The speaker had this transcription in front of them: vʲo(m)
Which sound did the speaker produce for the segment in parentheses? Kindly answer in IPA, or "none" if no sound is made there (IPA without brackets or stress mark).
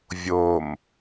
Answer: m